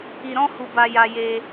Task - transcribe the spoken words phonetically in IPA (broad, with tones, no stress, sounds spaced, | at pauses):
i˧ ɾ ɔ̃˦ h u˧ b a˧ j a˧ j e˧